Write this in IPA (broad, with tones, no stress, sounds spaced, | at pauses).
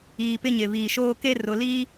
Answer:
iː˨ p ɪ˦ ɲ ɪ˨ β iː˨ ʃ oː˦ k e˦ r ʊ˨ l iː˦